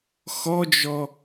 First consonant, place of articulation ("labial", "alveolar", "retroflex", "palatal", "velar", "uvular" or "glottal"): velar